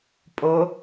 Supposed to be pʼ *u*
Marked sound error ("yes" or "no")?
yes